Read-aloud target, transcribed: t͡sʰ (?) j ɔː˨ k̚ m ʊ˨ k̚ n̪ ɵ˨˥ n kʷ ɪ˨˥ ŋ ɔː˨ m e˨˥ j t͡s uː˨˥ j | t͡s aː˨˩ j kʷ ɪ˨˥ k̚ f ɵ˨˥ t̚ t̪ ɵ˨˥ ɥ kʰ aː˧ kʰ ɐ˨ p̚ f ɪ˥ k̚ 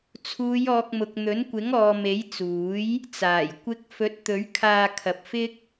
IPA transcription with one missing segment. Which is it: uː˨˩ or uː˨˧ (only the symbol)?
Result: uː˨˧